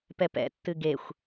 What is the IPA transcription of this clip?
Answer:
p ɛ p ɛ̰ tː ɨ ɡ e xʷ

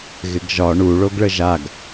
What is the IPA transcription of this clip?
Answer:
ɣ ɪ ɡ ʒ ɒ ɳ u ɭ o ɡ ɭ ə ʒ a ɡ

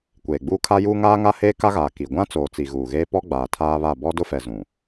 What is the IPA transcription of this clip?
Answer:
kʷ eː˨ ɡ͡b uː˦ kʰ a˦ j uː˦ ŋ aː˦ ŋ a˦ h eː˦ k a˦ ɣ aː˨ k i˨ ɡʷ ã˦ t͡s oː˨ t͡s i˨ ɣ uː˨ ɣ eː˦ p ɔ˦ ɡ͡b aː˨ tʰ aː˦ β a˦˨ b ɔ˦ d ʊ˦ f ɛ˨ z ũ˨

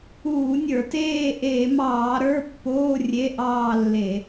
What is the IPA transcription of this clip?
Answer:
uː˧˩˧ nʲ ə˞˧˩˧ t eː˥˧ ʔ eː˧˩˧ m ɑː˧˩˧ ɾ ə˞˧˥˧ pː oː˧˥˧ rʲ e˧˥˧ ʔ ɑː˥˧ lː e˧˩˧

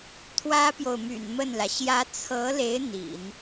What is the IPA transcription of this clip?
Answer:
t̪ʰ w ä˥ p j o˨ ʊ̯ m y̰˨˩ n m ə˥˩ n l ä˩ ɕ j ä˧˥ t͡sʰ ɤ˧˥ l e˧˥ ɪ̯ n̪ ḭ˨˩˦ n

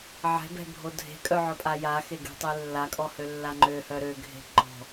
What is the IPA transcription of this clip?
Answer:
ʕ ɛ̤ b ɛ̤ bʱ o dʱ e̤ kʼ œ ʕ œ pʼ a j a x e ɡ e̤ tˤ e lː a kʼ ɔ h ø lː a ŋ͡ǃ ø h œ ɾ ø ɡʱ e̤ ǃ ɔ̤

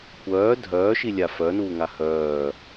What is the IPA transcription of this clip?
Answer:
kʷ œː dʱ œː ʃ i lʲ a f œ n uː ŋ a h œː

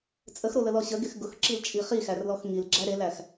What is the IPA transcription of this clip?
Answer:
t͡sʼ ə x ɾ o l ə l ɔ ɕ ə ɡ e x ɡ ʊ x ǁ i l t͡ʃʼ i χ i x æ r l ɔ x ŋ i l ɡ͡ǁ æ ɾ e l æ x

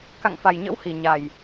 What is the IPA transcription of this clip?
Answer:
k a̰˧˨ ŋ f a˨˩ j ɲ ə̰˧˥ w h i˧˩ ɲ a˨˩ j

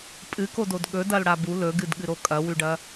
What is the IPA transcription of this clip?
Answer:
pʼ ɨ k o d o d ɠ ɵ d ɐ l ɽ a b u l ɵ ɡ ɨ d ɠ ɨ ɾ o kʼ ɐ w ʉ ɖ ɐ

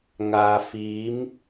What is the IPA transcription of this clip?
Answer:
ŋ aː˧ f iː˧˥ m

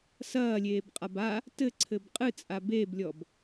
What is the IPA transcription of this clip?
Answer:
s ɐː lʲ eː b qʼ a b a | t ɘ ǀʰ ɘ b qʼ ɨ t͡sʼ a b e b lʲ ɔ b

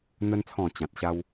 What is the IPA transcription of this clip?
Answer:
n̪ ə˧ n t͡sʰ ɔ̃˨˩ t͡ɕ ã˨ t̚ ɕ a˦ w

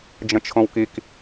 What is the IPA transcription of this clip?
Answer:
d͡ʒ ə̃ t͡ʃʰ õ w k i k

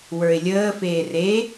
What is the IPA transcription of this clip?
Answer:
w ə˞ ɪ̯ lʲ əː f eː r e

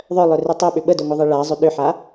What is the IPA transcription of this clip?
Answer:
ðˤ œ lˠ œ r ʏ tˤ œ ɓ ʏ ɓ ə d ø ŋʷ œ ðˤ i ɭ a zˤ ʏ ɗ ʏ ħ a

